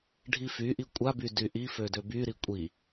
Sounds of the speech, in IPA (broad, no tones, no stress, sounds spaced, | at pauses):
ɖʱ i f y ʔ i kʷʼ a b y d y ʔ i f ø d ø b y ɾ i kʷʼ i